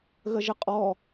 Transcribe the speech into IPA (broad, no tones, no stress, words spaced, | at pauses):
ɣəʒəqʼɔ